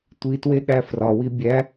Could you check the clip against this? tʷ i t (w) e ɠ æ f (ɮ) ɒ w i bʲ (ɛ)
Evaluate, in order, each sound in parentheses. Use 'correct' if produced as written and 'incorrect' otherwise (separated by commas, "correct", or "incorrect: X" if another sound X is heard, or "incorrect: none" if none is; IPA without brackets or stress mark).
correct, incorrect: r, incorrect: æ